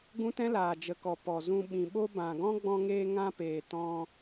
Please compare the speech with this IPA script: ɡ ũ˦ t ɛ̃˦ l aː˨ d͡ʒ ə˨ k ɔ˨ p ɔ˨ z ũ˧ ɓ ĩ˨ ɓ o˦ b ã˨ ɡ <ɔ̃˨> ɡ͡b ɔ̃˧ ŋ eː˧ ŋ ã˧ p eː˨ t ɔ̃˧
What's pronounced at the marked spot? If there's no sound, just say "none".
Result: ɔ̃˦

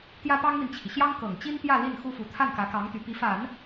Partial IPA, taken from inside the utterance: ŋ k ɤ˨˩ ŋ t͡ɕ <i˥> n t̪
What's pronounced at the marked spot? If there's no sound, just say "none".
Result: i˥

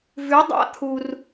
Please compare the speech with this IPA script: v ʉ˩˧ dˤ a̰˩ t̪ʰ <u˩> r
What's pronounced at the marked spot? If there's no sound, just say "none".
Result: u˩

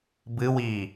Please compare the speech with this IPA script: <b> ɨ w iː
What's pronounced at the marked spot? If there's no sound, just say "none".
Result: b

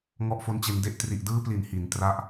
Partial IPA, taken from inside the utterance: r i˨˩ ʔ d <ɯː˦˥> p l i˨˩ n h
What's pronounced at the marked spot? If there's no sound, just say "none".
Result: ɯː˦˥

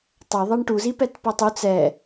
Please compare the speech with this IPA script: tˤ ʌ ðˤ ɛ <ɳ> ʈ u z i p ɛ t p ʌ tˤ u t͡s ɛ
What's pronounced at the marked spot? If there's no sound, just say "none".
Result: ɳ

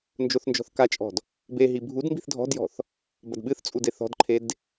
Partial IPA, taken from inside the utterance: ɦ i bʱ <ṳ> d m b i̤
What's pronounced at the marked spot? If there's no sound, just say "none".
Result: u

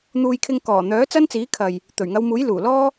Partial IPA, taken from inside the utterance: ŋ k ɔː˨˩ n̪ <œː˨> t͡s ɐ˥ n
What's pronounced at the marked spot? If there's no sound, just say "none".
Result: œː˨˥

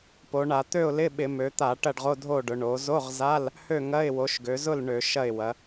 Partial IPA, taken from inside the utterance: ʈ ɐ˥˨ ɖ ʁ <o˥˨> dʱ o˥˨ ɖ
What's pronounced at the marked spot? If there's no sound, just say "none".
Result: o˧˥˧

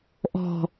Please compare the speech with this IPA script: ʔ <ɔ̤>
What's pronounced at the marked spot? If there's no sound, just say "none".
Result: ɔ̤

